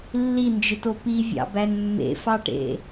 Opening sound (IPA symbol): lː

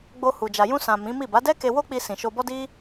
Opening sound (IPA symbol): ɡ͡b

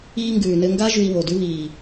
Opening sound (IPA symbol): iː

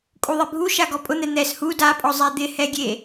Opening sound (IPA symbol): kʼ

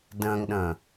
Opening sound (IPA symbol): d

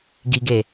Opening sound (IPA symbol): ɡ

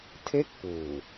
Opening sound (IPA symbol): tʰ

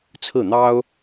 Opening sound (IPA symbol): t͡sʰ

